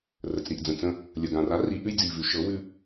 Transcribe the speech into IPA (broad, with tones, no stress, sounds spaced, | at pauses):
r ə˩ t͡s ɾ i˩ ʔ d͡z ə̃˩ t͡s ə̃˧ | lʲ ə˩ ɡ ã˩ r a˩˥ r i˩˧ ʔ ʉ˧ j d͡z i˩ v ʉ˩˧ ʃ ɤ˩˥ w ʉ˧